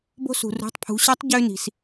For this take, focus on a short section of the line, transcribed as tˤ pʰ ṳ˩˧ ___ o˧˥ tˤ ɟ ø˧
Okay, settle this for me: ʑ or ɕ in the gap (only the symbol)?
ɕ